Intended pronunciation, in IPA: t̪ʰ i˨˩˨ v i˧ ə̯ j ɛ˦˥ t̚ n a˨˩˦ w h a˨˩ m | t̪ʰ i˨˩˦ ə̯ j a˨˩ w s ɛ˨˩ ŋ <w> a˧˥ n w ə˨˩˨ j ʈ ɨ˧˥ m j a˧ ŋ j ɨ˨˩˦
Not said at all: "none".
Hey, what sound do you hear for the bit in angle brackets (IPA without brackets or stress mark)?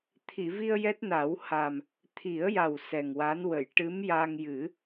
w